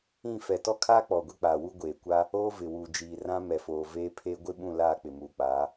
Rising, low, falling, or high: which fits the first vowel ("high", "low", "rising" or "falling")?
falling